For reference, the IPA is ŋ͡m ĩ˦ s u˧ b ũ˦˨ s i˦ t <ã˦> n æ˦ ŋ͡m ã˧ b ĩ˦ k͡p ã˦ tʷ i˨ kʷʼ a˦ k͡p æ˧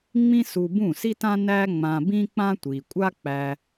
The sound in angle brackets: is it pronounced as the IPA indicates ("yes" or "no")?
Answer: yes